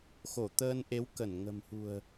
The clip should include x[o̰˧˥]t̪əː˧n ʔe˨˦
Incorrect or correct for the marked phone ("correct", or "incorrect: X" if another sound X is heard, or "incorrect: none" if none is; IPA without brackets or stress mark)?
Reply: incorrect: o˧˩